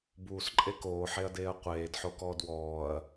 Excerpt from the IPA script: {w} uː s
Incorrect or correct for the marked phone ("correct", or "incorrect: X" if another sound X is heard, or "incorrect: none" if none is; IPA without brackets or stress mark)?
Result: incorrect: b